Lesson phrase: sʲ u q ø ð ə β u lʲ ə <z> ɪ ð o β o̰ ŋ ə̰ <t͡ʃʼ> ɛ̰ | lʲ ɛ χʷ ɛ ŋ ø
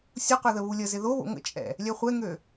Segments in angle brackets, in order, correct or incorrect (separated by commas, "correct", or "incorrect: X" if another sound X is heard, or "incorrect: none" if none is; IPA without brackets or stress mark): correct, correct